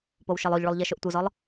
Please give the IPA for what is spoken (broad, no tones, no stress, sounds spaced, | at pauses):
p o w ʃ ɤ lˠ o ʎ ɭ u lˠ ʎ ɛ ʃ o ʔ tʷ ɯ z ɔ lˠ